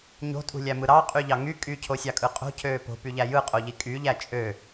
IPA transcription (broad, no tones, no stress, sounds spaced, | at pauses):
ɲ o̤ tʼ ṳ lʲ æ m ɯ ɾ ɑ qʼ y ʎ ɑ ŋ y kʼ y cʰ o sʲ ɑ kʼ ɯ qʼ o̤ cʰ øː p o̤ p y ʎ æ j ɯ qʼ o ʎ i kʼ y ʎ æ t͡ʃʼ ø